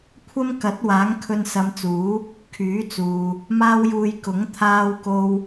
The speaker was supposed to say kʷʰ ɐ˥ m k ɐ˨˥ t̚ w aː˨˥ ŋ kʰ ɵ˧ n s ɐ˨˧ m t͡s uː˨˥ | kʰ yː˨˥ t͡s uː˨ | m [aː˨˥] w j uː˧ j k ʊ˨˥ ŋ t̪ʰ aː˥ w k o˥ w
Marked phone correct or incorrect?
incorrect